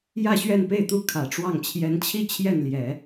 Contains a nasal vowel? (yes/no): no